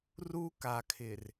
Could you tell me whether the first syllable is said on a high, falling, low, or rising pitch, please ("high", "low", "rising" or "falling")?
high